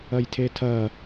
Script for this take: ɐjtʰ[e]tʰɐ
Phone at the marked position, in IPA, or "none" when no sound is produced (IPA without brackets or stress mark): e